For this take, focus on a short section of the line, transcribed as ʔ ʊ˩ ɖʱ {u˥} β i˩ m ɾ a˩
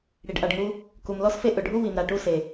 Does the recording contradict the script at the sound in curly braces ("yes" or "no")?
no